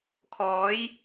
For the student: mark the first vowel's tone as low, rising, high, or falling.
rising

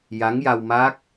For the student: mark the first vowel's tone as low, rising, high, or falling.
rising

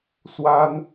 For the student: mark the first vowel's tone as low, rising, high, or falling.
high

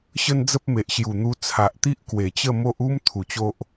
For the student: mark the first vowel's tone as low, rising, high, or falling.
high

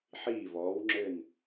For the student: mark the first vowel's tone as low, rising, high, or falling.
falling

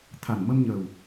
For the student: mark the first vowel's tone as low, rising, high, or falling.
low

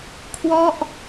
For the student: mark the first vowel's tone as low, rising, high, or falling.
falling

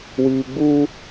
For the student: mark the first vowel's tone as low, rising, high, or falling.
low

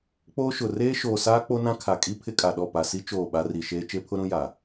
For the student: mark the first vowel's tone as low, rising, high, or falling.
high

